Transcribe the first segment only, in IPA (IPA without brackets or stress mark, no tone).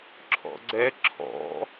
ǁʰ